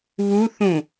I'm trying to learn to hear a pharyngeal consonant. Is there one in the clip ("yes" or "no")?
no